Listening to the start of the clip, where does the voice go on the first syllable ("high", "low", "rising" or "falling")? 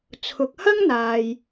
low